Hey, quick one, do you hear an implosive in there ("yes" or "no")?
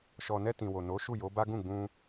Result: no